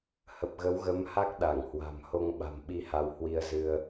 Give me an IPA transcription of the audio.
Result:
h ə˨˩ p̚ ɣ ə˨˦ w ɣ ə˨˦ m h a˦˥ k̚ ɗ a˧˩ ŋ h w a̤˨˩ m h o˧ ŋ ɓ a̤˨˩ m ɓ i˧ h a˧ w h w i˧ ə̯ z ɨ˧ ə̯

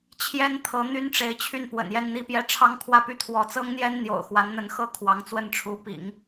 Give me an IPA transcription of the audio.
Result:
t͡ɕʰ j ɛ˥ n t̪ʰ ɤ˧˥ n̪ y˥ n ʈ͡ʂ e˧˥ ɪ̯ t͡ɕʰ y˥˩ n p w ə̰˨˩ n j ɛ˥˧ n n̪ i˥˧ p j ɛ˥˩ ʈ͡ʂʰ ɑ˥ ŋ kʰ w ä˥˧ p y˥˩ t̪ʰ w ɔ˧˥ t͡s ɤ˥ ŋ n̪ j ɛ˥ n n̪ j o̰˨˩ ʊ̯ x w a˧˥ n n̪ ə˧˥ n x ɤ˥ kʰ w ɑ˧˥ ŋ t͡s w ə˥˩ n ʈ͡ʂʰ u˧˥ p ḭ˨˩˦ ŋ

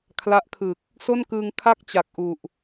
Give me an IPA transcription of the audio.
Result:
kʰ l a˦˥ ʔ kʰ ɯ˨˩ k̚ | s o˥˩ n k ɯː˧ ŋ kʰ a˥˩ k̚ t͡ɕ a˨˩ k̚ ʔ u˨˩ ʔ

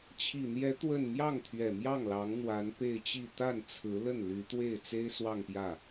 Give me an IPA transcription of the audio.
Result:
t͡ɕʰ i˨˩ n̪ j ɛ˧˥ t̪ w ə˥˧ n m j ɑ˥˩ ŋ t̪ʰ ɥ ɛ˨˩ m j ɑ˥˩ ŋ l ɑ˧˥ ŋ n̪ w a˧˥ n p e˥˧ ɪ̯ t͡ɕ i˥˧ t̪ a˥˩ n t͡sʰ ɹ̩˧˥ l ə˥˩ n l y˧˥ t̪ w e˥˩ ɪ̯ t͡s e˥ ɪ̯ s w ɑ˥˧ ŋ p j ä˥˩

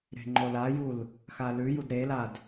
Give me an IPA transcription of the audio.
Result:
ɾ e̤ ŋ͡ǃ o l a j u l | x a l ʉ j u d ɾ e l a d

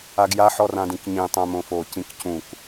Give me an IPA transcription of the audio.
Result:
a ɡ j a ħ ɔ r ã d ĩ k ɲ ĩ tˤ œ̃ m õ f o c ĩ k c ũ k

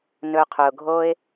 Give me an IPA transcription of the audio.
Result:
n ɵ˧ qʰ ɵ˨ ʊ̯ ɡʱ o˦ ɪ̯

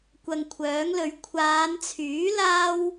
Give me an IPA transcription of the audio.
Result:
kʷ ɐ˧ ŋ kʷʰ œː˨˥ ŋ l ɵ˨˧ ɥ kʷʰ aː˨˧ n t͡sʰ yː˨˥ l aː˥ w

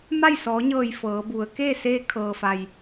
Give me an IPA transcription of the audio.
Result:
m a˥˨ j s ɔː˩˧ ɲ ɤː˧˩ j f ɤː˩˧ b u˩˧ ə̯ k eː˥˨ s eː˧ kʰ ɤː˩ f a˩ j

